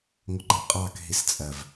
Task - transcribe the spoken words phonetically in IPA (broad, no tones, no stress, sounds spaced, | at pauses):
ŋʷ ə ɡ͡ǃ ə qʼ ɑ k ɦ i s t͡sʼ ɜ v